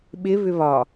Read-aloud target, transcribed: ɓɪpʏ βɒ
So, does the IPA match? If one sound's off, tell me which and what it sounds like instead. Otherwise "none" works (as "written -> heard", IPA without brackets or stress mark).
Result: p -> β